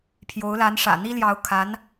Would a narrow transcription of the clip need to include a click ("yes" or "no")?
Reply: no